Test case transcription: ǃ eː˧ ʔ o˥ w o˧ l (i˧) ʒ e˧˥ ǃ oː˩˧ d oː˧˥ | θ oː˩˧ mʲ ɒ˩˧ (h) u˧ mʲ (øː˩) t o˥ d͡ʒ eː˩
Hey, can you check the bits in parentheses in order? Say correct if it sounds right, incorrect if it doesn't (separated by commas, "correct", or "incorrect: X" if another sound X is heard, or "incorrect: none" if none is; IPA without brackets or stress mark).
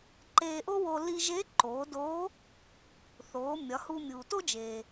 correct, correct, incorrect: uː˩